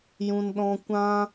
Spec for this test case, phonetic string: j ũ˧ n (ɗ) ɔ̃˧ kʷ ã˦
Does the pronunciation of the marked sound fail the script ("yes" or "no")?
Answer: no